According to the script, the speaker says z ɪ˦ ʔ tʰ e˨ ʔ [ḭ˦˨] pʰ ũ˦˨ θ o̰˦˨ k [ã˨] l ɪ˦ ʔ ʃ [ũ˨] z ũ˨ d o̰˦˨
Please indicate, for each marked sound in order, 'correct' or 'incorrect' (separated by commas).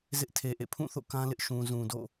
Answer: incorrect, incorrect, correct